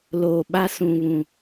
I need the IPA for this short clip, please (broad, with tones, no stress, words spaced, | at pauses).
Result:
loː˨ɓa˦ sũ˨βũ˨